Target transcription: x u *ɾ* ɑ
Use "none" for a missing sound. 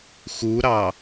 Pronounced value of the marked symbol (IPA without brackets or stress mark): ɾ